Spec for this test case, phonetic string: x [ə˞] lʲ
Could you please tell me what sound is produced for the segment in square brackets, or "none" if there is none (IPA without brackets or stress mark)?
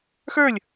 ə˞